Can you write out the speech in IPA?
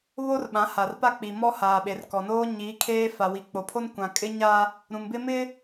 β o˦ r ɓ ã˨˦ h a˨ r p a˦ k͡p i˨ m ɔ˦ h aː˨ ɓ e˨ r k ɔ˨ n oː˦ ɲ iː˨˦ kʰ eː˦ f a˨ w i˨ k͡p o˨ pʰ o˦ n kʷ ã˨ kʼ ɪ˦ ɲ a˦ | ɾ ũ˨ m b ɪ˦ m ɪ˦

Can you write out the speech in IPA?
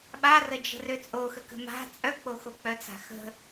ɓ a r ə d͡ʒ ə̤ r ø t͡sʼ o x ə k ə̤ m a̤ t͡sʼ œ k͡p o x o k͡p œ t͡s a̤ x ə̤

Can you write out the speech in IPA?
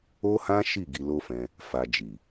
o˦ h ã˦ ʃ i˦˨ ɡ i˧ l o˦ f ɛ̃˧ | f a˧ d͡ʒ i˨

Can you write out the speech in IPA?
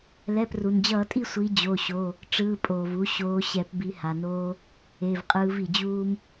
l ɛ˩˧˩ p r u˩ n d͡ʑ ʌː˧˩˧ tʼ i˦˨ sʷ i˨˦ d͡ʑ o˩˧˩ ɕ o˩˧˩ | ʈ͡ʂ ɯː˩˧˩ pʼ oː˩ v u˨˦ ɕ oː˨˦ ɕ ɛ˧˩˧ p b i˨˦ h a˩ n oː˦ | e˩˧˩ v qʼ ɯː˨˦ v i˩ d͡ʑ uː˦ m

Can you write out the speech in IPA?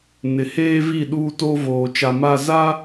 n ɪ˨ h eː˦ v i˦˨ ɗ uː˦ t o˦ v oː˨ t͡ʃ a˨ m a˦˨ z a˦

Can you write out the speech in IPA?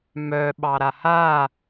m œ ɓ ɑ ɾ a h a

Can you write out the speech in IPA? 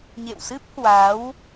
ɲ ḛ˧˨ w s ɨ˦˥ p̚ h w a˨˦ w

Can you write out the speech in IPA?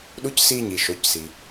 ɗ u˧˥ c s iː˧ ɲ i˩ ʃ o˩˧ c s i˩

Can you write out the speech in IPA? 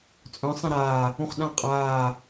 t͡sʼ œ̃ sˤ ẽ ɾ aː | ũ χ ɗ ã qʼ aː

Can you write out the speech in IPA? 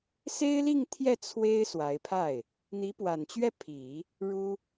s e˥ ɪ̯ l i˥˧ ŋ t̪ʰ j ɛ˥˩ t͡sʰ w e˥ ɪ̯ s w a˧˥ ɪ̯ pʰ a˥˩ ɪ̯ | n̪ i˧˥ p w a˨˩ n t͡ɕ ɥ ɛ˥˩ pʰ i˨˩˦ | ɻ u˥

